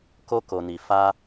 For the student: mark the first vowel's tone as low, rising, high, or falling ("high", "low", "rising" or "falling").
high